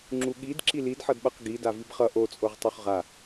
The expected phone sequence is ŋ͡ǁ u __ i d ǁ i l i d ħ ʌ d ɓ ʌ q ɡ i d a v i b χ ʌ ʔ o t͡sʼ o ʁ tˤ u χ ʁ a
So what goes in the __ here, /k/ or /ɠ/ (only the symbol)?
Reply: ɠ